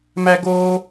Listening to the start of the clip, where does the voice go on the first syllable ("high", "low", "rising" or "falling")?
high